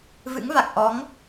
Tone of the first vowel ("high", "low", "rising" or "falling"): rising